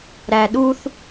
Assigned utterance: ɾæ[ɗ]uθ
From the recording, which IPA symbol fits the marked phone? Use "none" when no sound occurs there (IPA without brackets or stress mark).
ɗ